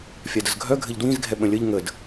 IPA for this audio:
fʲ a d ə z ɡʱ œ ɡʱ ɘ ʎ d w ĩ z ɡʱ ɛ ɓ ə̃ lʲ ə ʎ ŋ ə d

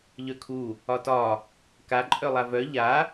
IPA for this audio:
ʎ œ kʰ u | ɒ t ɒ | k a ǃʼ œ lˠ a v œ ʎ a

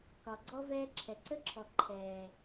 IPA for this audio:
k ɒ˨ ɡ͡ǀ ɔ˦ v ɛː˦ ǁʰ ɛ˨ ǀ ə˦ ǁʰ ɔ˨ ǃʰ ɛː˨

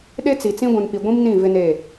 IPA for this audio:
ɗ e˦ t͡s i˨ t͡s ĩ˦ ɡʷ ũ˨ n p i˨ ɡʷ ĩ˦ m n ĩ˦˨ v ɪ˦ n e˦˨

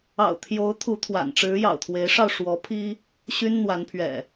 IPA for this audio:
ɑ̰˨˩ ʊ̯ t̪ʰ j o˨˦ ʊ̯ t̪ʰ u˨˦ t̪ʰ w a̰˨˩ n ʈ͡ʂ ɻ̩˨˦ j ɑ̰˨˩ ʊ̯ t̪ʰ w e˨˦ ɪ̯ ʂ ɑ˧ ʊ̯ ʂ w ɔ˨˦ pʰ i˦ | ɕ y˦ n n̪ w a˨˦ n pʰ ɥ ɛ̰˨˩

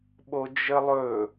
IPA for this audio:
ɓ o d͡ʒ ə lˠ ɵ

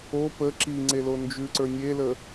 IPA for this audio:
o p ə ǁ i ŋ͡ǀ e l o n d͡ʒ ʉ ǀ ə˞ nʲ e l ə

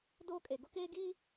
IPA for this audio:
d oː˦ kʼ e˨ ɡ ʊ˦ k eː˦ ɡ iː˦

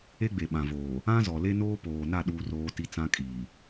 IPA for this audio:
e˦ ɡ͡b e˨ ɓ ã˨ v oː˨ | ã˦ z ɔ˨ l e˦ n oː˦ p oː˨ n a˦˨ ɗ uː˦ r oː˦ t i˦ t͡s ã˦ kʼ iː˨

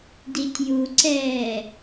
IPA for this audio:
d i tʲ j u ǀ ɛː

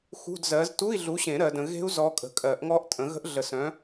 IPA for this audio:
x ṳ˧˥˧ d z ɜ˨˥ z t u˧˥˧ i̯ ɮ u˨˥ ɕ ẽ˨˩˦ ɾ ɜ˨ d ə̃˨ ɣ e̤˦˥ u̯ z ɔ˦˥ kʼ ə̤˨ kʼ ɜ˨˩˦ ʔ ŋ ɔ˦˥ ʔ tʼ ə̃˨˩˦ ɣ ə̤˦˥ ʔ ɮ ə˨˩˦ s œ̃˨˥

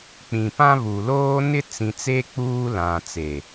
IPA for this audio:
k͡p ĩ˨ p ã˦ β u˨ l oː˦ n ɪ˦ t͡s ĩ˨ t͡s e˦ k͡p uː˦ l ã˨ t͡s e˨

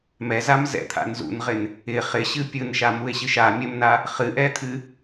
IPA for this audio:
m ɛ z a m z ɛ̰ t̪ʰ a̰ n z ṵ n ʁ ɪ n | ɪ χ ɪ ɕ ɨ pʲ ɯ n ʃ a m u e̯ ɕ ɨ ʃ a mʲ ə m n a | χ ɨ ʔ ɛ t̪ʰ ɨ

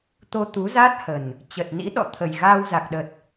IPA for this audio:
t̪ o˧ t̪ u˨˦ z a˦˥ t̚ h ə˨˩ n | t͡ɕ ə˨˩ t̚ n ḭ˧˥ ɗ ɔ̰˧˨ t̪ʰ ə˨˩ j ɣ aː˧ w z a˨˩ k̚ ɗ ə˨˩ t̚

